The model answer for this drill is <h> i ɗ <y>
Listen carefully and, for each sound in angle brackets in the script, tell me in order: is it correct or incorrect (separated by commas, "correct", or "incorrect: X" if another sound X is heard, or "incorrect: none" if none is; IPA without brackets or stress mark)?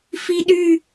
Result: incorrect: f, correct